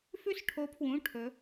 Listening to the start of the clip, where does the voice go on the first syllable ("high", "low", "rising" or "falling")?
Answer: high